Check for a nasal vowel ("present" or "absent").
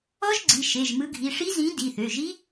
present